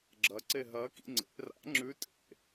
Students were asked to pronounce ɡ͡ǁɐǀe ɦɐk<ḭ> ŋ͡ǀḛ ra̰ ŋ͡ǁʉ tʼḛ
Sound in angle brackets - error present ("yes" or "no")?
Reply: no